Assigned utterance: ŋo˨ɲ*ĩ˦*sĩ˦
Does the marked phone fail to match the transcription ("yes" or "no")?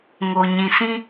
yes